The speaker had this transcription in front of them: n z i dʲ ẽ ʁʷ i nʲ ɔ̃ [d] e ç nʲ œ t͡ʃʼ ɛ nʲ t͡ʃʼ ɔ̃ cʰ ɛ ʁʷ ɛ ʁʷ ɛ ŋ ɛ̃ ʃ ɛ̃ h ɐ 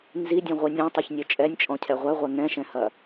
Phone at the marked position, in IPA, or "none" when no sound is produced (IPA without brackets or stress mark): tˤ